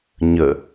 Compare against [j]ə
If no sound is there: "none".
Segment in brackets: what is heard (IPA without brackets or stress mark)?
ɲ